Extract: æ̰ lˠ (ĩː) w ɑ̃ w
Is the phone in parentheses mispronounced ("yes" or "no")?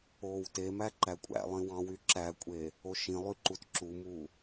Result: yes